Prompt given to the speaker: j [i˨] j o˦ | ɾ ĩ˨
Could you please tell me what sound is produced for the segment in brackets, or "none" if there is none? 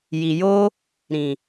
i˨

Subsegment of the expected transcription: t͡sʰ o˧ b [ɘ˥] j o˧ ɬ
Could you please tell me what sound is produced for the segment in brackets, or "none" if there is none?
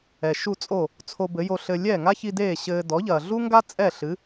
ɘ˩˥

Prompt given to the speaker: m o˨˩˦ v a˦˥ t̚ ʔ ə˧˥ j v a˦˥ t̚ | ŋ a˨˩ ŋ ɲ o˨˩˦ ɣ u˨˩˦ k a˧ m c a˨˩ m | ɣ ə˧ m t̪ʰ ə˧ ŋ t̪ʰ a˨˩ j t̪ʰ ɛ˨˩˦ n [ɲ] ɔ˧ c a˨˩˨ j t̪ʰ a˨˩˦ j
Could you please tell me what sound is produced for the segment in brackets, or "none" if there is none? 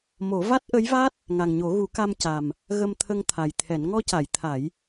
ŋ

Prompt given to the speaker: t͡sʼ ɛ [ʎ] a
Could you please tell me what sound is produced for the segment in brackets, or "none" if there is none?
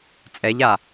ʎ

